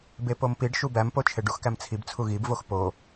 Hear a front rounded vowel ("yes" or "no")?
no